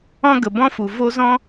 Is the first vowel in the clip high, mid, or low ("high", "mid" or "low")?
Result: mid